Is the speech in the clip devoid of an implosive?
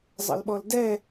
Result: no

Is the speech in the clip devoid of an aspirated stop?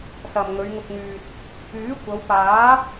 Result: yes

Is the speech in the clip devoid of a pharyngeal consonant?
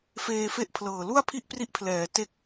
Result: yes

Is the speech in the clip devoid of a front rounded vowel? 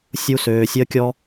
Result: no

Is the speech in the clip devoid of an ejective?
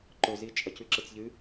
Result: no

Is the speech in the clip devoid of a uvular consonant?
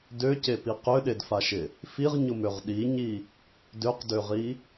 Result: no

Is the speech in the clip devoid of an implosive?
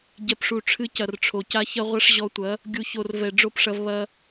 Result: yes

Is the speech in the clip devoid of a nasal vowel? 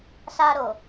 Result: yes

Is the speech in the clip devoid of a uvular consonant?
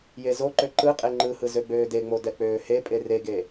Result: no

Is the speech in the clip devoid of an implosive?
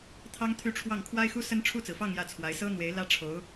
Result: yes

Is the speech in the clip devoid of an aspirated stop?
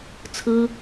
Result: no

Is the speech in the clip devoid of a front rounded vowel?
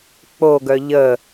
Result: no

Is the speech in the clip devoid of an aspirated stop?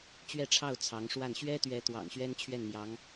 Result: no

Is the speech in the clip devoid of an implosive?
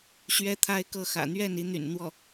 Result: yes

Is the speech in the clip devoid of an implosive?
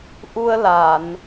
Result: yes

